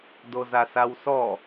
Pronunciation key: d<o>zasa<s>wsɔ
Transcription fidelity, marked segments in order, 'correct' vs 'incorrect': correct, incorrect

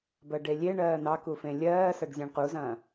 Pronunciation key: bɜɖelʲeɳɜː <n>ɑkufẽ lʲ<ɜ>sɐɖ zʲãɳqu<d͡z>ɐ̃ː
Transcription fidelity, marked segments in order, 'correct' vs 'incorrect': correct, incorrect, incorrect

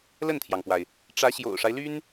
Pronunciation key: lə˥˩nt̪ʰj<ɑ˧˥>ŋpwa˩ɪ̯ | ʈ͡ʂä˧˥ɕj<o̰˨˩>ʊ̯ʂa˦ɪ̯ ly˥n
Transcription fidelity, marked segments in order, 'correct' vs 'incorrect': incorrect, correct

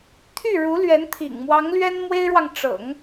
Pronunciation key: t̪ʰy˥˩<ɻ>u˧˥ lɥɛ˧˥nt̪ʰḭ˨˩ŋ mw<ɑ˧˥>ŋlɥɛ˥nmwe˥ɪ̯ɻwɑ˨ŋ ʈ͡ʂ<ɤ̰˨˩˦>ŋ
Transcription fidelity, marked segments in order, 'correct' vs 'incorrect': correct, correct, correct

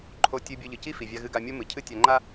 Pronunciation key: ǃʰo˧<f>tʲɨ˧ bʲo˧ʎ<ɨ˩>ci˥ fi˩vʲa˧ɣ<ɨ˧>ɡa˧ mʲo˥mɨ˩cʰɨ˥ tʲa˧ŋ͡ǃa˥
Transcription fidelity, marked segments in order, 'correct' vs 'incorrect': incorrect, correct, correct

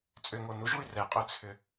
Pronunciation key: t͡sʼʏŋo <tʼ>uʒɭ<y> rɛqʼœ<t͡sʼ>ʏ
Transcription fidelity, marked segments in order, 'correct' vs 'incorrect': incorrect, correct, incorrect

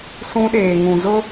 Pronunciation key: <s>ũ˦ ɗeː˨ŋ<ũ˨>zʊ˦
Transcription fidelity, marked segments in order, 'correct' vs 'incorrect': correct, correct

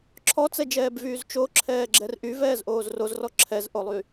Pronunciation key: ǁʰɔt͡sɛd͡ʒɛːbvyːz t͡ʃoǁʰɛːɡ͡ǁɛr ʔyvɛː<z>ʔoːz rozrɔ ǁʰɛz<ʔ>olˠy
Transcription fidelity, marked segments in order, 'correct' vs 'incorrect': correct, correct

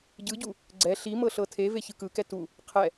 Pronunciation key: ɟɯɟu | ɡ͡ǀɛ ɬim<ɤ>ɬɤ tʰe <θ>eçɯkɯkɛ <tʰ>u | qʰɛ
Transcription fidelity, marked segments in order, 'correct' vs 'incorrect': correct, incorrect, incorrect

